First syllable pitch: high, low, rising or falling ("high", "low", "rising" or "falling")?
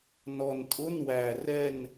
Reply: low